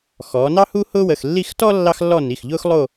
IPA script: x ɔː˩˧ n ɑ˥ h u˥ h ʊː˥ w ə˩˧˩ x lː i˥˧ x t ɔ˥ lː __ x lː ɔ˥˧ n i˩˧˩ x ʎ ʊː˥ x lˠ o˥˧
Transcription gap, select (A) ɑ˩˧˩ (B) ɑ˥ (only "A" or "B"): B